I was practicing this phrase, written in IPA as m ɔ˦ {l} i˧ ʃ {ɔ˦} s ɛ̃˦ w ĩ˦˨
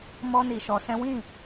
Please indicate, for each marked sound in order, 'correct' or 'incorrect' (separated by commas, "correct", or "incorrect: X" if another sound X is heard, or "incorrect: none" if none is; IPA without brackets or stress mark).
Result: incorrect: n, incorrect: ɔ˧